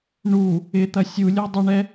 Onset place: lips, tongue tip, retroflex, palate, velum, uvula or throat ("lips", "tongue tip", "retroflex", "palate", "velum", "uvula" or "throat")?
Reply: retroflex